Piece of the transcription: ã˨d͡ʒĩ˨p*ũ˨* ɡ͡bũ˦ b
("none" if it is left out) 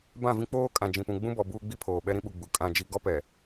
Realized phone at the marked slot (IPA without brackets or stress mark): ũ˨